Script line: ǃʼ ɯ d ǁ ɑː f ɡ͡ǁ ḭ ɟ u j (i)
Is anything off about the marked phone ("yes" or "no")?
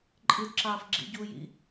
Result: yes